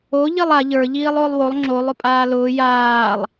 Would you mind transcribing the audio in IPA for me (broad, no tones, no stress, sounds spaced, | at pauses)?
o ʎ i lˠ a ʎ ə˞ ʎ iː lˠ ʊː lˠ w o lˠ ŋ͡ǁ o lˠ ʊ pʼ aː l ʊː j aː lˠ